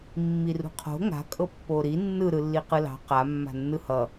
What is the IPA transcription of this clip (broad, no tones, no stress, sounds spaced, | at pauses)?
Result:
mː i r ṳ qʰ o̤ ŋ a̤ kʼ ɤ pː o ɾ i nː ɯ ɾ ɯ lː i q ɯ l ɑ̤ q a mː a̤ nː ɯ h ʌ